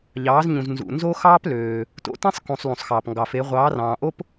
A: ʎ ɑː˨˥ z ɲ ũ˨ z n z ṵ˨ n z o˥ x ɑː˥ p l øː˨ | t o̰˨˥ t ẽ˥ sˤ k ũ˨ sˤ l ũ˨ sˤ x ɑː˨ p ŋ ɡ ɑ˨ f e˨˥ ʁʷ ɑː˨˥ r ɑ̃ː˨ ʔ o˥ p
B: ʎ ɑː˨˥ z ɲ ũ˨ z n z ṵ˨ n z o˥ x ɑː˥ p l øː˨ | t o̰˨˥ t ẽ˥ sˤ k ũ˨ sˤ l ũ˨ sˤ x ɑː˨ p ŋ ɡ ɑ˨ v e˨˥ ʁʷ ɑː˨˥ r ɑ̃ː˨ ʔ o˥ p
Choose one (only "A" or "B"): A